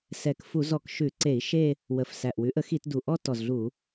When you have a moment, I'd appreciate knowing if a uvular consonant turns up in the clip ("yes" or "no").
no